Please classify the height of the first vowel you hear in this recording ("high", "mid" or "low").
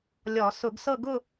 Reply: mid